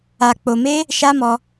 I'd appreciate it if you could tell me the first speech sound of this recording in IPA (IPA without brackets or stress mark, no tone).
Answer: a